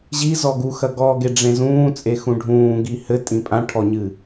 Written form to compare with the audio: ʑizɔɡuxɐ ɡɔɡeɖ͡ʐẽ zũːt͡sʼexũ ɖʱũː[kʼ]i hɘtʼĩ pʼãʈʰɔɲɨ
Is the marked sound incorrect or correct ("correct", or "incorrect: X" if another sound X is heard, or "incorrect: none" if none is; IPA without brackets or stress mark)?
incorrect: ɡ